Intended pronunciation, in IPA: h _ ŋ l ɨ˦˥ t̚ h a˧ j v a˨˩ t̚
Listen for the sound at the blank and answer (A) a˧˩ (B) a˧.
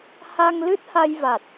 B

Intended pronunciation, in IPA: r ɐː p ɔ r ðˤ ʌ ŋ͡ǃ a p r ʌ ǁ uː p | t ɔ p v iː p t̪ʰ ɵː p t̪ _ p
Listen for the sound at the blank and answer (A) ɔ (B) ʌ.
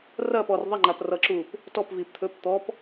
A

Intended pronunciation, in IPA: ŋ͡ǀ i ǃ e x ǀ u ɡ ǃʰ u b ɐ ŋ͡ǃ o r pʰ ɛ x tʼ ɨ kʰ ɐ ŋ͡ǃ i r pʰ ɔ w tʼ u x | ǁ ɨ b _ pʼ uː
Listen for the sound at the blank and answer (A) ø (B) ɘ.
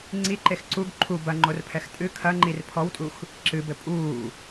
B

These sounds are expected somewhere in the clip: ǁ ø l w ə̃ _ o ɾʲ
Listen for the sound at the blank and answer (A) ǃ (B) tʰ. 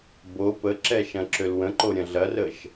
A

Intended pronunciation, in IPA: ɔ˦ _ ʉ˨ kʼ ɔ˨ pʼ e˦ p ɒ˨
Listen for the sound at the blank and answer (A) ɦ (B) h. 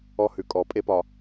B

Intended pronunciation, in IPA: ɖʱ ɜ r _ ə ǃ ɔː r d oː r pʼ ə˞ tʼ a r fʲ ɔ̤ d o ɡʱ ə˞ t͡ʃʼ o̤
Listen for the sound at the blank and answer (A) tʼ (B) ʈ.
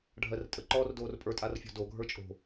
A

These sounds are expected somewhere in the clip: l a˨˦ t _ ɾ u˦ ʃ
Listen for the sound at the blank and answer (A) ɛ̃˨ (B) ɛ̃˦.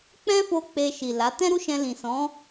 B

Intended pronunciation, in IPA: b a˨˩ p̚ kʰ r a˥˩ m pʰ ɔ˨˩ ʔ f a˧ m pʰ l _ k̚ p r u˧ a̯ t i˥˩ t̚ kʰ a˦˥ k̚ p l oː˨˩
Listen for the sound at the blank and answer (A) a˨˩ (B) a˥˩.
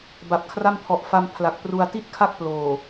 A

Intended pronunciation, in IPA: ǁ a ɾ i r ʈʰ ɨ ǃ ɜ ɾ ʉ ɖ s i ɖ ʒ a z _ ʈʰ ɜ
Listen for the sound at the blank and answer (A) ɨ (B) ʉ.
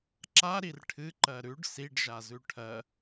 B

